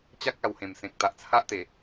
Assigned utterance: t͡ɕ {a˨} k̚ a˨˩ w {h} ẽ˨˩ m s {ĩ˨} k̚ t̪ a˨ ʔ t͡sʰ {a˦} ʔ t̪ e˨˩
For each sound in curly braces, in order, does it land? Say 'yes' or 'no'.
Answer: no, yes, no, yes

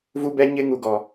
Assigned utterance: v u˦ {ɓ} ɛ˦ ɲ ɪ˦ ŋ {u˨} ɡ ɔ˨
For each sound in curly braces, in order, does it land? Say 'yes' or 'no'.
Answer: no, yes

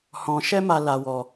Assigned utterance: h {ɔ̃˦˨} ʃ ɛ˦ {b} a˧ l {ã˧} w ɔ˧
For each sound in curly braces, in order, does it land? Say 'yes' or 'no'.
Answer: no, no, no

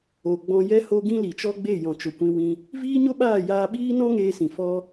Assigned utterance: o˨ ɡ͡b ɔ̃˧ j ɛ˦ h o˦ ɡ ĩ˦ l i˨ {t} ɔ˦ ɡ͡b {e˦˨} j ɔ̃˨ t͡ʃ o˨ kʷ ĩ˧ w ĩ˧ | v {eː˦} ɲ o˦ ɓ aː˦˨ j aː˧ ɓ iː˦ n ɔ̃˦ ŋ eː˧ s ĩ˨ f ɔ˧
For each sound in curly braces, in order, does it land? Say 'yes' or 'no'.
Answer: no, yes, no

